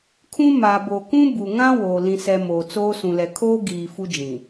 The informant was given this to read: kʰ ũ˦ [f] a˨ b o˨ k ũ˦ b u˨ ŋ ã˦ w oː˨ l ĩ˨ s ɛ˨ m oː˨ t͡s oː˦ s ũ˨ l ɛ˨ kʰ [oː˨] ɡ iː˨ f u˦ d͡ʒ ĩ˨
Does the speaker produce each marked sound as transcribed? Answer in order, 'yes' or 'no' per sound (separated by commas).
no, no